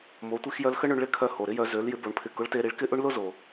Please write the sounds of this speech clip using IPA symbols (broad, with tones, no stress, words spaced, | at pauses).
mo˩˧tʷi˧xjœ˧lxə˥ ɳʏ˧ɳɭɪ˧˥kʰœ˧ ho˩ɾɪ˧˥jœ˩˧ zø˩˧l jɪ˧˥bo˩˧ɳpʰɪ˧ kʊ˧˥ɭte˧ɾi˧˥ɭkɪ˥ ʔʊ˥ɳlʊ˥zo˩